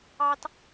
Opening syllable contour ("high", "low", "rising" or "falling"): high